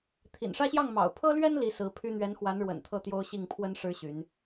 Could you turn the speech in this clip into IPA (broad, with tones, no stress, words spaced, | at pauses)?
t̪ʰḭ˨˩nʂä˥˧ɕjɑ˥˩ŋmɑ̰˨˩ʊ̯ pʰɤ˥lɥɛ˥n li˧˥sɹ̩˧˥pʰy˥ n̪ɥɛ˧˥nxwa˧˥n ɻwə̰˨˩nt̪ʰɤ˥˩t̪jo˥ʊ̯ ɕi˥˩ŋpʰwə˥n ʂɻ̩˥ɕy˧˥n